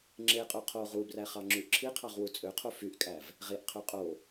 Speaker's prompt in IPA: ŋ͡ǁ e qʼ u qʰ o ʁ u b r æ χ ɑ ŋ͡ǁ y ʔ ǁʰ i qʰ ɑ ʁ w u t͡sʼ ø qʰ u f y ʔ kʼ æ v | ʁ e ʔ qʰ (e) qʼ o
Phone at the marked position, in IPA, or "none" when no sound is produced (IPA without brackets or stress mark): ø